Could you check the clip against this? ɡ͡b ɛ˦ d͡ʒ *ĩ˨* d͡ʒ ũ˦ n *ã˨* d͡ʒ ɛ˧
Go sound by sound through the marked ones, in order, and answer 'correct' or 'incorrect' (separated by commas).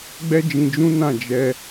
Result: incorrect, incorrect